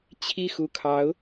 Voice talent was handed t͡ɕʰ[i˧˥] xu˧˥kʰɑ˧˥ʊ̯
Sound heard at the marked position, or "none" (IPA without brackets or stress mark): i˥˩